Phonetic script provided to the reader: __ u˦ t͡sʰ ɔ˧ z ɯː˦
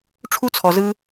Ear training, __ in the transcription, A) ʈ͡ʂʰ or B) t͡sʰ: A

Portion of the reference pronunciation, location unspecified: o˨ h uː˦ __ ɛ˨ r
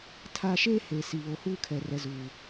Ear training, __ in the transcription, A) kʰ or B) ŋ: A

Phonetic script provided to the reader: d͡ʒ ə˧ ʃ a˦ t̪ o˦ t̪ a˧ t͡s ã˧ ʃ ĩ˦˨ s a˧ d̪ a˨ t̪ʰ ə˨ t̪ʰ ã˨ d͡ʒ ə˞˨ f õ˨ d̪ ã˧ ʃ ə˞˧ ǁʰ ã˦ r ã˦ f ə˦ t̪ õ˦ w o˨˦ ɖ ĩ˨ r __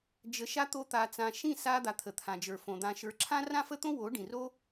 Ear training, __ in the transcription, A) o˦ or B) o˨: A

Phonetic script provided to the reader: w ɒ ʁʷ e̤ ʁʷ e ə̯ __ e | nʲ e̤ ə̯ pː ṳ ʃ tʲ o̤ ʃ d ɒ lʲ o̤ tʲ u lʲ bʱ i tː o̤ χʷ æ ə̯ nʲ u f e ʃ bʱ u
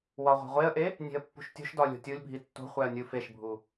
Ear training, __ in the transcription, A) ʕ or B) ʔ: B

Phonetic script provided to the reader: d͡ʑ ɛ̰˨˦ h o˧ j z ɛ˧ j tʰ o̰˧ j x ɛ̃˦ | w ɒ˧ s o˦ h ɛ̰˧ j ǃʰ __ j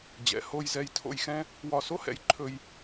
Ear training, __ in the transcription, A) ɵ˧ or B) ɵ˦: A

